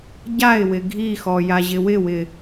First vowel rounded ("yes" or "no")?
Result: no